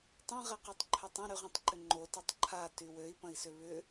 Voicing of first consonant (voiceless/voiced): voiceless